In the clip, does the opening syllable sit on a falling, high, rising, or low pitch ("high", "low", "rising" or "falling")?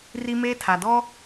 high